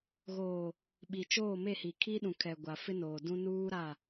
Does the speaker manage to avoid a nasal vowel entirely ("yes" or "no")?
no